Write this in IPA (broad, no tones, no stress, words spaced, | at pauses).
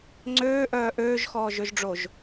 ŋ͡ǀøːʔœː ʔøːʒxɔːʒøʒɖ͡ʐoʒ